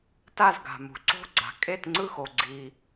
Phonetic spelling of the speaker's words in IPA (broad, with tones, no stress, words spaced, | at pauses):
ta˥˨zɡa̤˨mṳ˨ ǀo̤˥˨ ɡ͡ǀa̤˨ kʼe˥˨tŋ͡ǀɯ˥˨xo˨ɡ͡ǀi˨